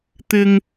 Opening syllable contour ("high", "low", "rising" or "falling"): high